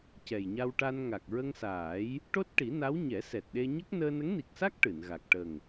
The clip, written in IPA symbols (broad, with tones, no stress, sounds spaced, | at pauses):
c ɛ˨˩ j ɲ a˧ w ʈ a˧ n ŋ a˨˩ k̚ ɹ ə˧ ŋ s aː˨˩˦ j | ʈ o˦˥ t̚ ʈ i˨˩˦ n a˧˥ w ɲ ɛ˨˩˦ s ɛ˨˩ t̚ ɗ e˧ ɲ ə˦˥ k̚ n əː˧ n ə˧˥ ŋ n i˨˩ k̚ s a˦˥ k̚ ʈ ɨ˨˩˨ n ɣ a˨˩ k̚ ʈ ə˨˩ ŋ